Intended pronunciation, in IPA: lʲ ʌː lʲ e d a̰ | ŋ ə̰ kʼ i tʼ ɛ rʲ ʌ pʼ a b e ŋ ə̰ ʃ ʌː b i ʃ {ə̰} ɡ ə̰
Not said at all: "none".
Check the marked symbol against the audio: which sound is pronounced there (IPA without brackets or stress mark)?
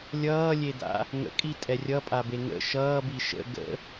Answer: ə̰